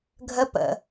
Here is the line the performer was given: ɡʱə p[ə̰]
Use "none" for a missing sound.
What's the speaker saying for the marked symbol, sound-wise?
ə̰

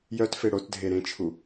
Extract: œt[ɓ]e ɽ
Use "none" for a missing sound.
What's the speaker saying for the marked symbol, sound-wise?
f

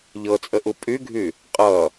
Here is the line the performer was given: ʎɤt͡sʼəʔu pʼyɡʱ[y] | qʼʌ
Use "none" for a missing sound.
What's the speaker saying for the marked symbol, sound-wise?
y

